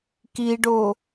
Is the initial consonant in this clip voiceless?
yes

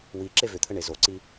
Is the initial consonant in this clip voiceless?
no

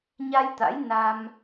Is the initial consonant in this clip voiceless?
no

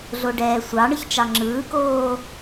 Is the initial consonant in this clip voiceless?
no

